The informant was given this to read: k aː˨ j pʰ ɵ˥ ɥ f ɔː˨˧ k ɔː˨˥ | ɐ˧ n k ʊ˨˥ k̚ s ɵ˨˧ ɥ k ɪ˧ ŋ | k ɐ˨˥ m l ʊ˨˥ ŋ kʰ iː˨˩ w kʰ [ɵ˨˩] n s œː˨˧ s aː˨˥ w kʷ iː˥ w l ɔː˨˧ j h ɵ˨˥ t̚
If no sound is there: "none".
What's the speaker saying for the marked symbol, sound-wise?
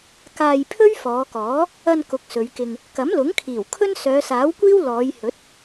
ɵ˥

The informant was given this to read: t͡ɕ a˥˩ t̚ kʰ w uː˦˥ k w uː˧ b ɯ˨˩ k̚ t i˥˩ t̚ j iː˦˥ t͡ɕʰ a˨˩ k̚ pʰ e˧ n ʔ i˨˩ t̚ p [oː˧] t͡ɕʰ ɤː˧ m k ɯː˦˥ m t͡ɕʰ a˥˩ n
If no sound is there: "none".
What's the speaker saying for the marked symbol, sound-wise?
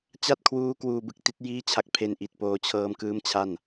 oː˧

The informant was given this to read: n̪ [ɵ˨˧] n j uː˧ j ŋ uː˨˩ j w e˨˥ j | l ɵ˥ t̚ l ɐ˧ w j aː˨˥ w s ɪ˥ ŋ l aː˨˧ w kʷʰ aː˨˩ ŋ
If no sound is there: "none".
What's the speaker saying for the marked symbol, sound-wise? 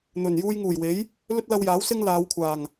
ɵ˨˩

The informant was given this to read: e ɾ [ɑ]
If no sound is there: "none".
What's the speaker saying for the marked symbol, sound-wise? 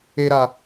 a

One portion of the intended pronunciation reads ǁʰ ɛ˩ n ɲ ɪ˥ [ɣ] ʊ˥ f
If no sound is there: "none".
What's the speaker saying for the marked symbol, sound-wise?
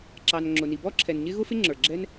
ɣ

